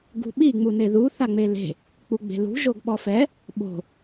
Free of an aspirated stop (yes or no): yes